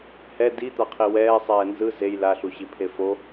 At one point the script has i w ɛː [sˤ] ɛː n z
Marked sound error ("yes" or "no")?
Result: no